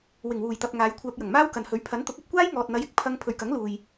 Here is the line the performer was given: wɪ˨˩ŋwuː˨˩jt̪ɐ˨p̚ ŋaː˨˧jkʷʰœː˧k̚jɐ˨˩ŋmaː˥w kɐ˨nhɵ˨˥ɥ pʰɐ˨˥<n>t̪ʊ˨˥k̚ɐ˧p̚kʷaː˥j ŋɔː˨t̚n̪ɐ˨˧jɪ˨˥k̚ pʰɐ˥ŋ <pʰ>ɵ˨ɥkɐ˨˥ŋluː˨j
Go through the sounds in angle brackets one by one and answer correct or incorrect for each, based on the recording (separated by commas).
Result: correct, correct